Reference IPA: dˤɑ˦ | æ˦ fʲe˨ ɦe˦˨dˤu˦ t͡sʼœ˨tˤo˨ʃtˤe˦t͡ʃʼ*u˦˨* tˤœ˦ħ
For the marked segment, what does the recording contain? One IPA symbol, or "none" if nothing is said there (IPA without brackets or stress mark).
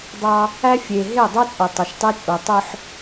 u˨